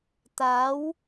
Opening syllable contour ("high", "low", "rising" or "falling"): rising